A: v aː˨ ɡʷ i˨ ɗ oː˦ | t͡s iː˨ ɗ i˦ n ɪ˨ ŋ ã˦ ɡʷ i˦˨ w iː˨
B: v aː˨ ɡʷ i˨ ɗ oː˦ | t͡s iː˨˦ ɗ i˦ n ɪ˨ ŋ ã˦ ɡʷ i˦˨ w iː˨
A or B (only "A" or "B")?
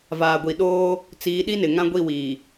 B